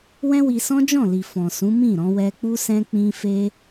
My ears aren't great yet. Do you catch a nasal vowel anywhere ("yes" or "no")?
yes